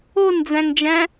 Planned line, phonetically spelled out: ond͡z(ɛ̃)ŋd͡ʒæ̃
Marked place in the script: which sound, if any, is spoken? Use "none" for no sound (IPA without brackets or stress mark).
æ̃